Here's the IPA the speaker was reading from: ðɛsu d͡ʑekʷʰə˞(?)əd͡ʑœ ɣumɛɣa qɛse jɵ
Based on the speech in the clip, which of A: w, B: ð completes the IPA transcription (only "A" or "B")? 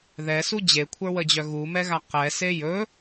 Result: A